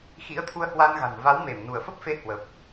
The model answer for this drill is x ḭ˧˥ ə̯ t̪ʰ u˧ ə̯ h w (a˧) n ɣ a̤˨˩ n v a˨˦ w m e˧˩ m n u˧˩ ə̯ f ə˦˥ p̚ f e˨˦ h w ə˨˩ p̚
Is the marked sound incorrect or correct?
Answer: correct